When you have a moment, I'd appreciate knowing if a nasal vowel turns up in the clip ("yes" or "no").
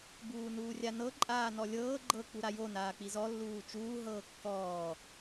no